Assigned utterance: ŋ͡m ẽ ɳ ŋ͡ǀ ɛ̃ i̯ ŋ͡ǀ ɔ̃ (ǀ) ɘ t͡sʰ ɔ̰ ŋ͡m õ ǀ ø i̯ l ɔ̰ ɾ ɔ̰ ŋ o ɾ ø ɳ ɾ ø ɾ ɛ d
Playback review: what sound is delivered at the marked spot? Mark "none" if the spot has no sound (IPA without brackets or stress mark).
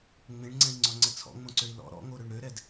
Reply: ŋ͡ǀ